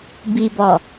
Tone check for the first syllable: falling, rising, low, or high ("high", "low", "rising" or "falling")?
low